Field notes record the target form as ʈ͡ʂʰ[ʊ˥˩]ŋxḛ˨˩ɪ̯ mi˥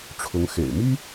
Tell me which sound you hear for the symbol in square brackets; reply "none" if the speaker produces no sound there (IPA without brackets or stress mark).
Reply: ʊ˧˥